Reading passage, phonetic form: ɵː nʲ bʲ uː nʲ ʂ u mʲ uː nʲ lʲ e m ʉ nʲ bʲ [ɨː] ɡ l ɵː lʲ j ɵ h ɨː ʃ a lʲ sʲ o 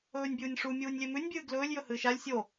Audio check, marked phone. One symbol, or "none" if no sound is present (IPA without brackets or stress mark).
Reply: ɨː